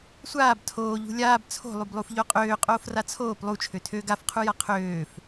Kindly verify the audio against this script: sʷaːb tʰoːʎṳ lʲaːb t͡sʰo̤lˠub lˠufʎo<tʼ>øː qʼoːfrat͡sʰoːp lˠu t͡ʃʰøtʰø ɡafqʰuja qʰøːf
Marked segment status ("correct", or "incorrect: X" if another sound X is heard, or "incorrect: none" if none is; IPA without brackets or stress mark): incorrect: qʼ